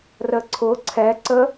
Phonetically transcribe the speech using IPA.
r ə ǀʰ ʊ ǀʰ ɛ ǀ ə

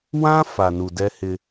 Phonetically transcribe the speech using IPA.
w ã˦ f a˨ n u˨ d ɛ˦ h ɪ˦

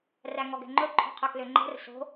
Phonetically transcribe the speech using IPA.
r æ ŋ ɔ ɡ ɛ̤ ŋ͡ǃ ɵ ǃʰ ɔ̤ qʰ ɵ k l ø ŋ͡ǃ ɛ̤ r s o̤

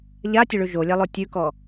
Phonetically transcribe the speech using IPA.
ʎ a tʲ ə ɭ ʉ ʒ o lʲ a lˠ o tʲ ʉ k ɔ

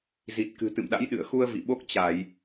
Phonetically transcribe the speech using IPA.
z i˨˩ t̚ k ɨ̤˨˩ t̪ ɨ̰˧˨ m ɗ a̰˧˥ j ɗ ɨ̰˧˨ ə̯ x u˧ ə̯ v ḭ˧˨ ɓ o˦˥ k̚ t͡ɕ a˧˩˨ j

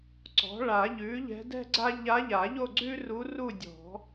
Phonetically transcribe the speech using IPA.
ǀ ɔ̤˩˥ ɭ a˨˩˦ ʎ ʉ˩˥ ʎ ɛ̤˧˥ d ɛ̤˥ ɡ͡ǀ a˥ ʎ a˧˥ ʎ a˨˩˦ ʎ o˥˧ ɡ͡ǀ ʉ˥ r u˧˥ r u˥˧ dʲ ɔ̤˨˩˦

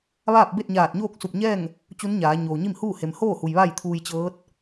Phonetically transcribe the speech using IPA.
ʋ aː˥˨ p̚ b e˥˨ t̚ ɲ aː˧˩ t̚ ɲ oː˥˨ k̚ s u˧˩ p̚ ɲ ɛː˥˨ ŋ | t͡ɕ u˧˥ n ɲ aː˩˧ ɲ oː˩ ɲ i˥˨ m h uː˥˨ h e˩ m h oː˥˨ h u˩ j ʋ a˥˨ j t̪ʰ uː˧ j t͡ɕ ɤː˧˥ t̚

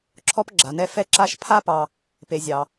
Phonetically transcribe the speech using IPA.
ǁʰ ɔ˥ p ɡ͡ǁ a˩ n ɛ˥ f ɛ˦ ǁ a˦ ʃ pʰ a˥ p ɑ˨ | p e˩ zʲ ɑ˩

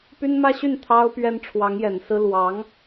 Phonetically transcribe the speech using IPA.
p y˥ n m ä˥ ɕ y˥˩ n t̪ʰ ɑ˥ ʊ̯ p ɥ ɛ˥ n ʈ͡ʂʰ w ɑ˧˥ ŋ j ɛ˨˩ n s ɹ̩˥ l w ɑ˧˥ ŋ

